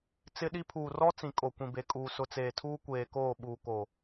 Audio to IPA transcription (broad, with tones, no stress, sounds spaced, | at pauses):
t͡s ɪ˦ ɗ i˦ pʰ uː˨ r ɔ˦ t͡s ĩ˨ kʼ o˨ kʷ ĩ˨ b e˨ kʼ uː˨ s ʊ˨ t͡s eː˨ tʰ uː˦ kʷ eː˨ k oː˦˨ ɓ uː˨ k o˨